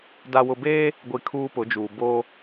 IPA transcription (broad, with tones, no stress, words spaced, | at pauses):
da˨wʊ˨beː˦ | ɡʷi˨ kʰuː˦pʊ˨˦d͡ʒuː˨ bo˦